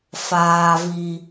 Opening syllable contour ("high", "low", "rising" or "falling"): low